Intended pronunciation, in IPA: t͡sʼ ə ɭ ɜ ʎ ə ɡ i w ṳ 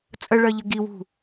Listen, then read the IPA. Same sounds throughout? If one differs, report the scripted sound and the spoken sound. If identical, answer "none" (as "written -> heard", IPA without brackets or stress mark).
none